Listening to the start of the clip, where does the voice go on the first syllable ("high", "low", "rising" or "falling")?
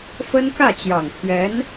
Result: high